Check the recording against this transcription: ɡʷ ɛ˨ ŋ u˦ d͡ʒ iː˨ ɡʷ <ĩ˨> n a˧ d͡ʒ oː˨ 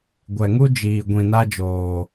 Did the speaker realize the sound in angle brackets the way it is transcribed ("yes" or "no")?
yes